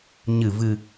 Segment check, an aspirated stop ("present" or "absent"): absent